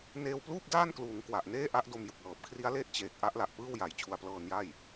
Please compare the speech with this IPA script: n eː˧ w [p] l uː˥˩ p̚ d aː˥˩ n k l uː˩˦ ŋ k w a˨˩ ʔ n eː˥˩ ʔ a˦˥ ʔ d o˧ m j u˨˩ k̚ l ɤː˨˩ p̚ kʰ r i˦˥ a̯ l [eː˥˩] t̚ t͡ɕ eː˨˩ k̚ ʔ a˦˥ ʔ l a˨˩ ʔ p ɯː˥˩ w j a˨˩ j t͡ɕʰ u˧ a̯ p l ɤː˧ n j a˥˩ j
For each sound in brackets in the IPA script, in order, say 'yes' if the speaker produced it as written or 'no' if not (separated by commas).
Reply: yes, yes